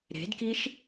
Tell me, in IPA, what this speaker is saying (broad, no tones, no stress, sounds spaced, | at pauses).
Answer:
ɾ e̤ d k i ʃ